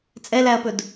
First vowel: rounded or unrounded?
unrounded